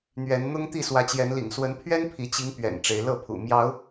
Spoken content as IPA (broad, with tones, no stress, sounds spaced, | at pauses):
n̪ ɥ ɛ˨˦ n n̪ ʊ˦ ŋ t̪ i˥˨ s w ä˨˦ t͡ɕ j ɛ˨˦ n l ḭ˨˩ ŋ s w ə˨˦ n pʰ ɥ ɛ˦ n pʰ i˨˦ t͡ɕ i˨˦ ŋ p ɥ ɛ̰˨˩ n ʈ͡ʂ e˨˦ ɪ̯ l ɤ˥˨ pʰ ṵ˨˩ m j ɑ˨˦ ʊ̯